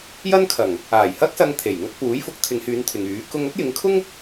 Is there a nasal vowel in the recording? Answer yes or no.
no